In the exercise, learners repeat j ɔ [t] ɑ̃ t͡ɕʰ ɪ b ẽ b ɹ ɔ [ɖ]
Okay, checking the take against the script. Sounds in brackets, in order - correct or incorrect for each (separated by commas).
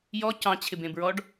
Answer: incorrect, correct